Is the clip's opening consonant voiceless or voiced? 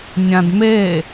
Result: voiced